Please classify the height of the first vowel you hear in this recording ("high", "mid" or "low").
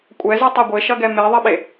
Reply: mid